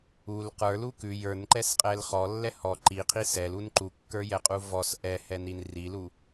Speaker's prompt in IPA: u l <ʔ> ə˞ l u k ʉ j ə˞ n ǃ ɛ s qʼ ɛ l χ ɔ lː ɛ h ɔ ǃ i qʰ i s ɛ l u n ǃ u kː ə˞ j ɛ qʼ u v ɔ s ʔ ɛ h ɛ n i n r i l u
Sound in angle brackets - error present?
yes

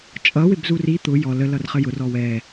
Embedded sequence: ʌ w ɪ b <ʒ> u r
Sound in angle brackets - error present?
yes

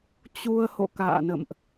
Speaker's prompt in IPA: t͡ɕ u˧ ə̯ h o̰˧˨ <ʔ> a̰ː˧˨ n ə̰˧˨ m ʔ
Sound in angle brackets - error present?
yes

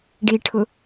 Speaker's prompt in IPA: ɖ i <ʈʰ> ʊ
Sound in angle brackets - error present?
no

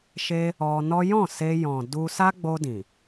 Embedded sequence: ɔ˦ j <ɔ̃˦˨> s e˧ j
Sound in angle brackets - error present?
no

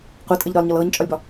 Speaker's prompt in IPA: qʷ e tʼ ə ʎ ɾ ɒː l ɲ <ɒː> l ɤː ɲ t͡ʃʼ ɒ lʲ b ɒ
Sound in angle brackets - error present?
yes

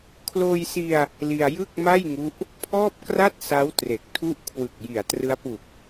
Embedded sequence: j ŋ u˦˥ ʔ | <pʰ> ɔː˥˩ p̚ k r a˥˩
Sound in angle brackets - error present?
no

